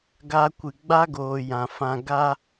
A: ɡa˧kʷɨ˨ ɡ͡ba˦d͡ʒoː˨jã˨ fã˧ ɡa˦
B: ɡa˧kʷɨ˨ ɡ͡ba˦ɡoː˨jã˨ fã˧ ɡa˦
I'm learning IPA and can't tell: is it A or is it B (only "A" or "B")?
B